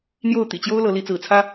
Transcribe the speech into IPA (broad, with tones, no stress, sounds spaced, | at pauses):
n̪ j o˥˨ ʊ̯ t̪ ḭ˨˩ t͡ɕ j o˦ ʊ̯ l ɤ˨˦ l i˨˦ t͡s ɹ̩˨˦ t͡sʰ ä˦